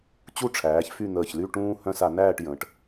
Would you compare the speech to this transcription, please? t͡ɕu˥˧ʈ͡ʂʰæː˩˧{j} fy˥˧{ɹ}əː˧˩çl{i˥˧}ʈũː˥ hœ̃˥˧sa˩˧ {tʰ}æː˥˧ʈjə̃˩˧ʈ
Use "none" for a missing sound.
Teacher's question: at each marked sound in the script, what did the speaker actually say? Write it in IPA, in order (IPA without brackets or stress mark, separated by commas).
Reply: ç, n̪, y˥˧, n